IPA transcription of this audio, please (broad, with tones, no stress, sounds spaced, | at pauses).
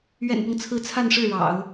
ɥ ɛ̰˨˩ n p ɤ˦ ŋ t͡sʰ ɹ̩˧˥ t͡sʰ a˥˧ n ʂ ɻ̩˥˩ ɻ ɑ̰˨˩˦ ʊ̯